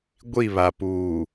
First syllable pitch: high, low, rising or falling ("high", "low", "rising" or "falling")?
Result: falling